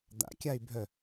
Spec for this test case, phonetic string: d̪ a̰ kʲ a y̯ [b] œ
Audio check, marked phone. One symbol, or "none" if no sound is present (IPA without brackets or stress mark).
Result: bʱ